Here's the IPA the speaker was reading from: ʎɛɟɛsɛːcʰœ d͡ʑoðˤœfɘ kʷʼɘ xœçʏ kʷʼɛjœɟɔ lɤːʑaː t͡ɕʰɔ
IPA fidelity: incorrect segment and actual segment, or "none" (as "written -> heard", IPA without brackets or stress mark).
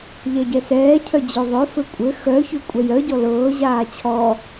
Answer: none